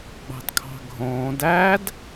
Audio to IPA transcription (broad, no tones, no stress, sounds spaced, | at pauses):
ɡ͡b ɑ̤ d kʰ ɑ̤ ɡʱ õː d æ d